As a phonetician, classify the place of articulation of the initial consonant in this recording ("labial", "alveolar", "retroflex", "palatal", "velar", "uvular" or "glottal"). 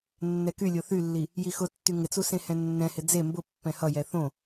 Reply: alveolar